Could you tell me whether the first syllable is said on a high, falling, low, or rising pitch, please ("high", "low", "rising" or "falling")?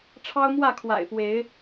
high